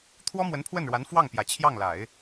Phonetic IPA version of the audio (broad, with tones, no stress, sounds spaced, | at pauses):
t̪ʰ w ɔ˥ m w ə˧˥ n pʰ w ə˥˩ n ɻ w a˧˥ n f w ɑ˥˩ ŋ p j ä˨˩ t͡ɕʰ j ɑ˥˩ ŋ l a˨˩˦ ɪ̯